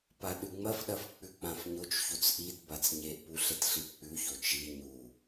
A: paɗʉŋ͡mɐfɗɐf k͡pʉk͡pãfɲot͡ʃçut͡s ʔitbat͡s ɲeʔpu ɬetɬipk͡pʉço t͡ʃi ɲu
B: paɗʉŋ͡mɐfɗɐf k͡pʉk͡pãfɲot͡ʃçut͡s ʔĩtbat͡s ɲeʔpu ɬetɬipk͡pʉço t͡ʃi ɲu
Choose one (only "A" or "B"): A